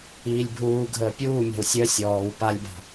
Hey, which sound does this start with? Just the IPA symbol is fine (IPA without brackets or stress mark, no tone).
iː